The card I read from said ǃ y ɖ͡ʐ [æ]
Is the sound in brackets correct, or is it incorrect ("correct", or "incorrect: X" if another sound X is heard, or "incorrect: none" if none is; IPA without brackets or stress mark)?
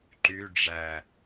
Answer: correct